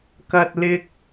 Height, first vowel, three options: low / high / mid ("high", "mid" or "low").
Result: low